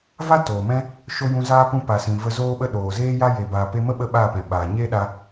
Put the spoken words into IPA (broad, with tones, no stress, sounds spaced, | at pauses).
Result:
v a˦ t oː˨ m ɛ̃˦ | ʃ o˦ j ũ˧ z aː˦ p ũ˧ p a˨ s ĩ˨ v ə˧ z oː˦ ɓ ə˦ ɗ oː˨ z eː˦ j a˦ j e˨ b aː˨ p e˧ m ə˦ ɓ ə˦ ɓ aː˦˨ p ɛ̃˨ ɓ aː˨ ɲ eː˦ ɗ a˧